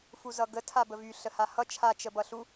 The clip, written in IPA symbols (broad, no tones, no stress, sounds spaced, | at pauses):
f u z ʌ ɡ ə tʰ a b ə v y ɬ ə h a h ʌ t͡ʃʰ a t͡ʃ ə b ʌ ɬ u